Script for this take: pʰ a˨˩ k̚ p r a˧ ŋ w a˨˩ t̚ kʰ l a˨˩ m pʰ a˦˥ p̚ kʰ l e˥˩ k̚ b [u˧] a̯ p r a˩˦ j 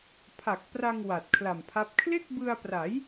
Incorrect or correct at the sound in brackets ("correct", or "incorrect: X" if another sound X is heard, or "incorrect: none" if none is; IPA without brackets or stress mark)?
incorrect: ɯ˧